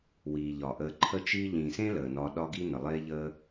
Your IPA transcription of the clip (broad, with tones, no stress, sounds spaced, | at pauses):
w iː˨ ʎ ɒ˨ ʔ əː˧ ǃʰ ə˦ t͡ʃ iː˦ ʎ ĩː˨ s ẽ˦ l əː˨ n ɒː˧ ɗ ɒ˦ ɡ i˦ n ə˨ lˠ eː˦ ʎ əː˦